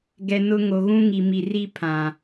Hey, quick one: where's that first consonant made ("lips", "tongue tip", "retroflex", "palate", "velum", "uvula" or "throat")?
velum